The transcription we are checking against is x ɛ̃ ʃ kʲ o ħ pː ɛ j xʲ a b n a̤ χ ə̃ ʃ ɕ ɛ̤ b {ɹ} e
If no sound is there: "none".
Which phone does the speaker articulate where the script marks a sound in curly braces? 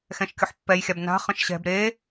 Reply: ɾ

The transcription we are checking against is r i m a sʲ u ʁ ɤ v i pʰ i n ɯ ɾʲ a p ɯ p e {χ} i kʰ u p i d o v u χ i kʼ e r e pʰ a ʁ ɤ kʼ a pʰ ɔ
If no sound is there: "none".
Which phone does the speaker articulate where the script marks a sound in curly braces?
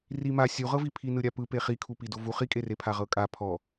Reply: χ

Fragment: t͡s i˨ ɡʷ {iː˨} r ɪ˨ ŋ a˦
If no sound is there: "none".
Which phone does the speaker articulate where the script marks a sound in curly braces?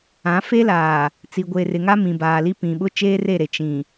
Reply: eː˨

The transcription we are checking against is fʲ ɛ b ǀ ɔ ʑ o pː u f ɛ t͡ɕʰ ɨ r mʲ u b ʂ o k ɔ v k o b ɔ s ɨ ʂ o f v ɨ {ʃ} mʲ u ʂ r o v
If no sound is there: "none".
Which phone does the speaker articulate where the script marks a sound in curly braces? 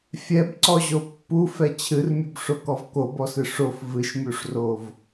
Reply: ʃ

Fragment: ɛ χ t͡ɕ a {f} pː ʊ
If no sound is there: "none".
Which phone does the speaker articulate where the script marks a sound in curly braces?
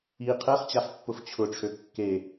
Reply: f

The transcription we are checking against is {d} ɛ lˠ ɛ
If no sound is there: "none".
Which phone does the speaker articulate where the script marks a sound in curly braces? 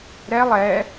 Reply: ɾ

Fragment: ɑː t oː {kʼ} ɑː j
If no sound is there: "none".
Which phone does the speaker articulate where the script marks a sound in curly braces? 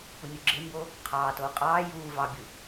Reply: qʼ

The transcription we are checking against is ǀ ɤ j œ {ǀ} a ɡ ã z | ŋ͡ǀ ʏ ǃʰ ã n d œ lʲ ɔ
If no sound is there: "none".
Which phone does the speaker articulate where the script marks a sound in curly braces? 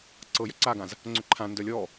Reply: ǀ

